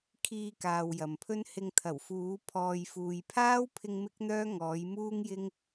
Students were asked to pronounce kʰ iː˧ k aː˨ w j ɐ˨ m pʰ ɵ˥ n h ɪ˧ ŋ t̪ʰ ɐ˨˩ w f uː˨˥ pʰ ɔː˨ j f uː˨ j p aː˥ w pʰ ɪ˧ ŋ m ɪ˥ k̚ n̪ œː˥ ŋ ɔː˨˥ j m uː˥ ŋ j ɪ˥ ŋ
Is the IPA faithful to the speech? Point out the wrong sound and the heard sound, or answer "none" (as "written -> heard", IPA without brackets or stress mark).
p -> pʰ